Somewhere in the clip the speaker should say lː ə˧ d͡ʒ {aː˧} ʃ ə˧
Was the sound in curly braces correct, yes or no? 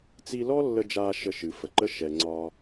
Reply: yes